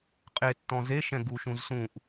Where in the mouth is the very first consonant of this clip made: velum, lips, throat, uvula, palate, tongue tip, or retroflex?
uvula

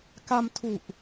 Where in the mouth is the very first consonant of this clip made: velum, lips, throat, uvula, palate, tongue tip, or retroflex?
velum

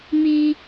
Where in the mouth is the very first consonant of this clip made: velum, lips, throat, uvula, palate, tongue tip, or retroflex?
lips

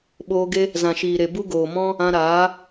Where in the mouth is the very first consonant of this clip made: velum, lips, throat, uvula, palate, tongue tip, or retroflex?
lips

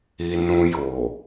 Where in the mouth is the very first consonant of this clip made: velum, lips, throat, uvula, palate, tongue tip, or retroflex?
tongue tip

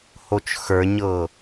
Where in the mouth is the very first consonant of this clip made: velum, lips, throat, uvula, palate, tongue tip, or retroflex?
throat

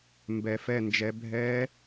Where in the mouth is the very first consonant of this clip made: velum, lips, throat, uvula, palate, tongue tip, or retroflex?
lips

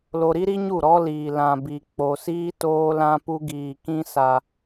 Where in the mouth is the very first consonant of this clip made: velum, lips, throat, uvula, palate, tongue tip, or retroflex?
tongue tip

